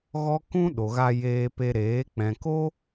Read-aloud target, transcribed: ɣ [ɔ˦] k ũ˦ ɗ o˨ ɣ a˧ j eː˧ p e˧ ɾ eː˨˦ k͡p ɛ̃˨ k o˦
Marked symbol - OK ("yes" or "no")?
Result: yes